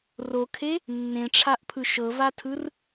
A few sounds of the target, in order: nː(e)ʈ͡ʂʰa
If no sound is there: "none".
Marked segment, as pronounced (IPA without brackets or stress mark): ẽ